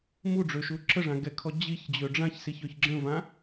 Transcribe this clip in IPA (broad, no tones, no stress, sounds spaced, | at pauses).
m u ɖ͡ʐ ø ʃ u ǁ ə ʐ ã ɡ ɛ kʰ ɔ d͡ʑ i ç d͡ʑ ø ɖ͡ʐ ã ç s i ç ø ç ɡ͡ǁ ə̃ v ã